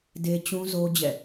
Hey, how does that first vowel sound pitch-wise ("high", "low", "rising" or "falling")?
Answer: high